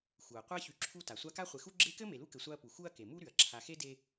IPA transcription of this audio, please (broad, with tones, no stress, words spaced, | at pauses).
xu˩ɐ̯qʷa˥ çy˨ǁʰu˦ta˩ sʷa˦ka˥χʷe˨ xu˥ ɡ͡ǁe˦kɘ˥ me˨lu˥kɘ˨sʷa˦ɐ̯ pu˩xu˦ɐ̯ke˩ mu˦ ɾy˩ɐ̯ǁʰa˨xe˥de˦